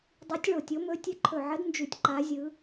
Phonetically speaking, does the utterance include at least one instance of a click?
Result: yes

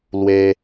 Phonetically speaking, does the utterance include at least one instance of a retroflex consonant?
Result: no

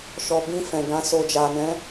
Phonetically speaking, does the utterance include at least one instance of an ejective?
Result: no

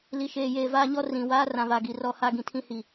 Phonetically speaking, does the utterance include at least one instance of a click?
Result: no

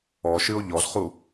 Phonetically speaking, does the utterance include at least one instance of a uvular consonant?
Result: yes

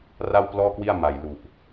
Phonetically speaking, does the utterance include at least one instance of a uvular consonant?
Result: no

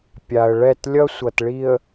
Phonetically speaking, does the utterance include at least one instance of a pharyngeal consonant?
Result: no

